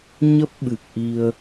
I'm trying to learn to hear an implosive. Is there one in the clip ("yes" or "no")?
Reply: yes